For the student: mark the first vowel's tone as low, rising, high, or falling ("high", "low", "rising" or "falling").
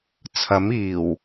rising